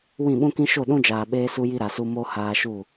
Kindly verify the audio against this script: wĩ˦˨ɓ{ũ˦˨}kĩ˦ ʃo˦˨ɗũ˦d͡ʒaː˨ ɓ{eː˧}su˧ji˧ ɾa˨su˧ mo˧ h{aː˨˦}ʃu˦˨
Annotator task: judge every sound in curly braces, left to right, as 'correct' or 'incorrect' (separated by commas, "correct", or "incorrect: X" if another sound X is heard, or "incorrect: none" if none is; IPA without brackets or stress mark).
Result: incorrect: ũ˦, correct, incorrect: aː˧